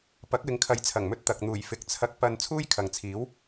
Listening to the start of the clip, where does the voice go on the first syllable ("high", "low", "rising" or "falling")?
rising